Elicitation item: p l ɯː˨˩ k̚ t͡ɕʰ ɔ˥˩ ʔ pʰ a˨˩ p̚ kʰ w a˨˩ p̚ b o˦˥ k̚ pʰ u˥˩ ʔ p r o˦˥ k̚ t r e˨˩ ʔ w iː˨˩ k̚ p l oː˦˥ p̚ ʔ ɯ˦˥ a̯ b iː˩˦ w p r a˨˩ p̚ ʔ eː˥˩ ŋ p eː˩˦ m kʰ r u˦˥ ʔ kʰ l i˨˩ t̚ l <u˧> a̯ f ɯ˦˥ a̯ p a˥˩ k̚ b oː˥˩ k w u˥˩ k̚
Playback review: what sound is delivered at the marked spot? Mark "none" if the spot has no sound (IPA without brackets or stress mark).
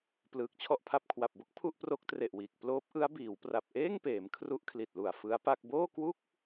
u˨˩